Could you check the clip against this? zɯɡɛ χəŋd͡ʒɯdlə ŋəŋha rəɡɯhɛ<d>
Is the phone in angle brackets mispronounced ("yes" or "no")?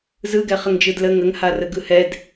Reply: no